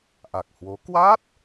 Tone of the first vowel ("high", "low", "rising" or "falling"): low